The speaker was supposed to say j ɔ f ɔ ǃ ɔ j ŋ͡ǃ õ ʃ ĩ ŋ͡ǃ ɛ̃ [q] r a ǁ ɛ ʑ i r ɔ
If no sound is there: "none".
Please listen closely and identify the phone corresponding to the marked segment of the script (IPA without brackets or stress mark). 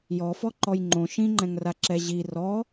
ŋ